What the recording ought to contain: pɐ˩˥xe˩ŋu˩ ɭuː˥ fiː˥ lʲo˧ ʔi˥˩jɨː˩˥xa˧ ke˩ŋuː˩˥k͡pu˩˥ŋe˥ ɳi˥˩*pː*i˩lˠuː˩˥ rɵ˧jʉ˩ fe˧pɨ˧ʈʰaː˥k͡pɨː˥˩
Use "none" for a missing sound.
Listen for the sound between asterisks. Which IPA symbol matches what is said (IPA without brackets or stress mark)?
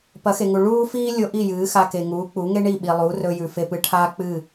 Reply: ɓ